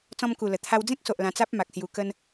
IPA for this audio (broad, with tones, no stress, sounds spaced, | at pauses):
t͡s ɔ̃˧ m k u˨˩ l ə˨˩ t̪ʰ a˧ w d͡z ẽ˦ k̚ s o˨ ʔ l ã˧ t͡s a˦ p̚ m a˨ k̚ s j u˧ k ə˦ n